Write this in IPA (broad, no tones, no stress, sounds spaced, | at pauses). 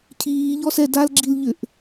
cʰ iː ʎ ɔ s ɛ d a l ɡ͡ǁ i l ʎ ʏ ʔ